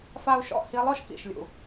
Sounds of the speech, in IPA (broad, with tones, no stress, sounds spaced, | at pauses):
f a˥ u̯ ʃ ɔ̰˥ h i˧˥ lˠ ɔ˥ ʃ k ḭ˩ ʃ lʲ ṵ˩